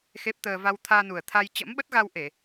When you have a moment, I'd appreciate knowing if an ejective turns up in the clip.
no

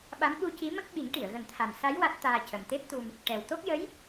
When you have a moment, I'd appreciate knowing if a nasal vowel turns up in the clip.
no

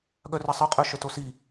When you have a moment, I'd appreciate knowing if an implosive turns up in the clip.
yes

